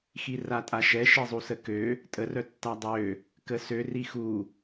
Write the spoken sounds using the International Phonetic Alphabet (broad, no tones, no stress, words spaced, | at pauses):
xiratʼaʃɛ ʃizˤusəkø | tʼə rœtːadˤø | kəsø rixu